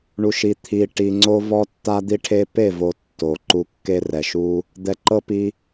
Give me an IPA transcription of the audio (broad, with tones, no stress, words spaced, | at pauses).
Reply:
ɳu˨ʃi˨ t̪ʰi˨ ʈi˨ŋ͡ǀo˧vɔ˧ tːa˦d̪i˦ʈʰe˦ pe˦˨vo˨ tːo˨ ǃu˧kːe˦rɛ˨ʃu˦ | d̪ɛ˧ ǃɤ˦pi˧